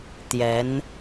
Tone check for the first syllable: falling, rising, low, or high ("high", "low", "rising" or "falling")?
rising